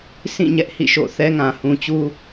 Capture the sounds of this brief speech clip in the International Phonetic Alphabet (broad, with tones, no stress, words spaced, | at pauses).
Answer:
sʰĩ˦˨ɲɛ˦ʔ hḭ˦˨ʃo̰˦˨θɛ˦ ŋã˨hũ˨t͡ɕu˦